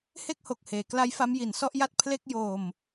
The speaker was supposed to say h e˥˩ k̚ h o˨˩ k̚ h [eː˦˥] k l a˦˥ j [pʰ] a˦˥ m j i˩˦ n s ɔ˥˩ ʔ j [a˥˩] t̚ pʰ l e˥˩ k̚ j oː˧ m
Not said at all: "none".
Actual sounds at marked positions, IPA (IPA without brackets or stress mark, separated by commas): eː˩˦, f, a˥˩